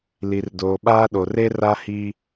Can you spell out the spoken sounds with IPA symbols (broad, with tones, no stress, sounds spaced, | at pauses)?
l i˨ r d oː˨ ɓ aː˦ ɗ o˨ r e˦ r a˦ h i˦